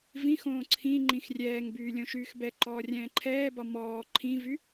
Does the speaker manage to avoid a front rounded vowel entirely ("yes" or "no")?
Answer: no